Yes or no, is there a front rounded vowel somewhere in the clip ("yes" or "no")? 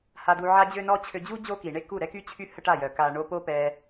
yes